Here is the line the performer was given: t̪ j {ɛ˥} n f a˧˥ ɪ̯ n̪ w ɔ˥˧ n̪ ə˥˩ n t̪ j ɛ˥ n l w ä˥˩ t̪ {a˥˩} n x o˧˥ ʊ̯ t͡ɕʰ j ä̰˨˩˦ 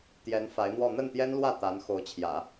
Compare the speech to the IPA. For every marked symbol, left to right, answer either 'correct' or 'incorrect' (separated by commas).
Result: incorrect, incorrect